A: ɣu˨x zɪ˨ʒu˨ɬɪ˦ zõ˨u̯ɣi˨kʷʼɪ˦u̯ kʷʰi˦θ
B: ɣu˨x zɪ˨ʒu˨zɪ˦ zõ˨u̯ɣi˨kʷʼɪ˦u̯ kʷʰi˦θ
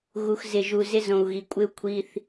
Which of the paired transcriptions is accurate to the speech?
B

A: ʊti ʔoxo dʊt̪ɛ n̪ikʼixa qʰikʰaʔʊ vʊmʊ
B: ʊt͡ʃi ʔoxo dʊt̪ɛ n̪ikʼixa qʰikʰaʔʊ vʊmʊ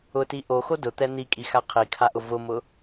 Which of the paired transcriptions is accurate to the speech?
A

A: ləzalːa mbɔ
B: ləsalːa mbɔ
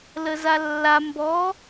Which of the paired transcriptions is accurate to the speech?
A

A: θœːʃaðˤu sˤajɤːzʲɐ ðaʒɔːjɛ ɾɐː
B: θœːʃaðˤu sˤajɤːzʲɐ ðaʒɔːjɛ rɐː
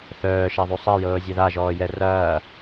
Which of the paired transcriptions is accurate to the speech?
B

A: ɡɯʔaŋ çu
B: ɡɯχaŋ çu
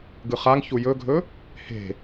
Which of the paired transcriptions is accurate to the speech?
B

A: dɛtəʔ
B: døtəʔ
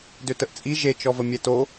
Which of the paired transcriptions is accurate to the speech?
B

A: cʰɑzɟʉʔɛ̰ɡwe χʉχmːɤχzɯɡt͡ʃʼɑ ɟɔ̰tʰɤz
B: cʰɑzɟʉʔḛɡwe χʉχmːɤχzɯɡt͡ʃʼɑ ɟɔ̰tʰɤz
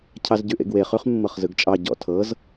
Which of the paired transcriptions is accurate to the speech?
B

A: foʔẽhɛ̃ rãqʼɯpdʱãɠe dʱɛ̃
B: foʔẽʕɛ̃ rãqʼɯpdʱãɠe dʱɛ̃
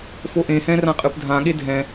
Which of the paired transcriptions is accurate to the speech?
A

